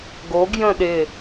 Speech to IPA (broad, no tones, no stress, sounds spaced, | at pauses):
ɡ o ɡ j ə̃ ɗ ɪ